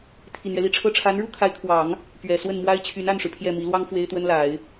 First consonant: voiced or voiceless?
voiceless